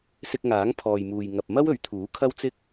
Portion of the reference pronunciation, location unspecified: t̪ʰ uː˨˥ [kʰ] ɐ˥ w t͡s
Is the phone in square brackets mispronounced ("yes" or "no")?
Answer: no